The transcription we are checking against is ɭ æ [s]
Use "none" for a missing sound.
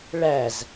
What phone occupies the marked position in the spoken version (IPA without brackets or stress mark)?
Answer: z